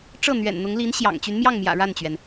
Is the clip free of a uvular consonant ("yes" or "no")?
yes